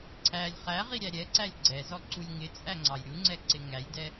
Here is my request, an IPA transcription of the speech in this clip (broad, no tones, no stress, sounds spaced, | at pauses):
ǀʰ æ lʲ χ æ ʁ i ɾʲ æ ɾʲ ɛ ǀ æ lʲ ɡ͡ǀ ɛ z ɔ ǀ u lʲ ŋ ɪ t͡sʼ æ ŋ͡ǀ ɑ j ɾʲ u ŋ͡ǀ ɛ ǀ ɪ ŋ æ j d ɛ